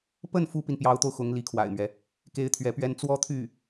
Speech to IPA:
p ə˥˩ n f u˥ p i˨ n p j ɑ˧˥ ʊ̯ t̪ o˧ ʊ̯ x ʊ˧˥ ŋ l i˧˥ kʰ w a̰˨˩ ɪ̯ m ɥ ɛ˦ | k e˥ ɪ̯ t̪ʰ ɥ ɛ˧˥ p ɥ ɛ˥ n t͡s w ɔ˥ t̪ʰ y˥˩

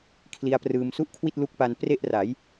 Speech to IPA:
kʰ l i˧ a̯ p r ɯː˧ m s u˥˩ ʔ kʰ w i˥˩ t̚ l u˦˥ k̚ p a˧ n p r e˥˩ ʔ r a˩˦ j

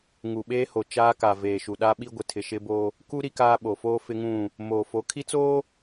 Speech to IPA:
ŋ u˨ ɓ eː˦ h o˨ t͡ʃ aː˦ k a˨ v eː˨ ʃ u˨ ɗ a˦ ɓ i˦ ɡʷ ɪ˨ tʰ ɪ˨ ʃ ɪ˦ b o˦ | k u˦ ɾ i˦ k aː˦ ɓ o˨ f oː˦ f ɪ˦ ŋ ũ˦˨ | m oː˨ f o˨˦ kʰ i˦ t͡s oː˦

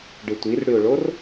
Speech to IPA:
ɖ ɯ tʷ i r ɽ y ʊ̯ ɭ o r

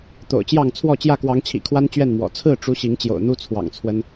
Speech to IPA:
t̪ o̰˨˩ ʊ̯ t͡ɕ j ɑ˥˨ ŋ t͡sʰ w ɔ˥˨ t͡ɕ j ä˥˨ k w ɑ˨˦ ŋ t͡ɕʰ ḭ˨˩ kʰ w a˦ n t͡ɕ ɥ ɛ˥˨ n m w ɔ̰˨˩ t͡sʰ ɹ̩˥˨ ʈ͡ʂ u˦ ɕ i˨˦ ŋ t͡ɕ j o̰˨˩ ʊ̯ n̪ u˦ t͡sʰ w ɑ̰˨˩ ŋ t͡sʰ w ə˦ n

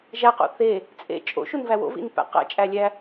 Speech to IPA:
ʒ æ q o̰ θ e | t͡sʼ ḛ t͡ʃʼ o̰ ʃ u n v æ w o̰ v ḭ n p æ̰ q æ̰ t͡ʃʼ æ lʲ æ

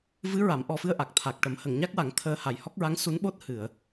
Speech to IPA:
v ɨ˧˥ ɹ a˨˩˦ m ʔ ɔ˨˩ f ɨ˧ ə̯ ʔ a˨˩ k̚ t̪ʰ a˨˩ k̚ ʈ ə˨˩˦ m h ə˨˩˨ ŋ ɲ a˦˥ k̚ w a˨˩˦ ŋ t̪ʰ əː˧ h a˨˩ j h ɔ˦˥ k̚ ɹ a˧˥ ŋ s u˧˥ n ɓ o˦˥ t̚ h ɨ˨˩˨ ə̯

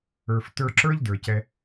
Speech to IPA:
ə˞˨ f t ə˞˧ ǁ ə˞˦ ʎ d ə˞˨ c ɛ˧

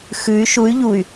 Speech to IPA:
x ʉ y̯ ʃ u y̯ ʎ u y̯

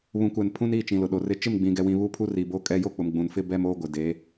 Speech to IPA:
β ũ˨ kʷ ɛ˨ n pʰ ũ˦ n iː˦˨ t͡ʃ ĩ˨ l ʊ˨ ɗ o˨ r ɪ˦ t͡ʃ ɪ˦˨ m ɡ͡b ĩ˨ ɡ ɛ˨ w ĩ˨ β u˦ pʰ u˦ r i˨ b o˦ kʼ ɛ˦ j o˦ k͡p ʊ˨ m ɡ͡b ũ˨ n f ɪ˦ b ɛ˦ m oː˦ ɡʷ ɪ˨ d eː˨˦

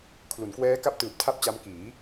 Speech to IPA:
kʰ l u˩˦ n k w ɛː˦˥ k a˥˩ p̚ t ɯː˨˩ p̚ tʰ a˥˩ p̚ t͡ɕ a˦˥ m k iː˩˦

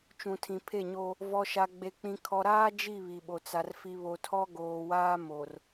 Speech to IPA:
t͡ʃ ũ˨ tʰ ĩ˨ pʰ e˦˨ ɲ o˦ | v ɔ˨ ʃ a˨ ɡ͡b e˨ k͡p ĩ˨ kʰ ɔ˨ ɾ aː˦ d͡ʒ i˦˨ β i˨ ɓ o˨ t͡s a˨ r f i˨ β o˨ tʰ ɔ˦ ɡ oː˨ w aː˦ m o˨ r

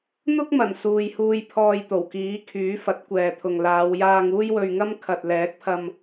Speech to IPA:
n̪ ʊ˥ k̚ m ɐ˨˩ n s uː˨ j h uː˧ j pʰ ɔː˧ j t̪ o˨˩ w k iː˨˥ kʰ yː˨˥ f ɐ˨˥ t̚ kʷ ɛː˨ t̪ʰ ʊ˨ ŋ l aː˨˧ w j aː˧ ŋ uː˥ j w ɵ˧ ɥ ŋ ɐ˥ m kʰ ɐ˨ t̚ l ɛː˨˥ k̚ pʰ ɐ˧ m

